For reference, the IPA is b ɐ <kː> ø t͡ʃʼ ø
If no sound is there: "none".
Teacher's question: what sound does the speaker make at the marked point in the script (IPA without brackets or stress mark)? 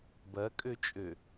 kʼ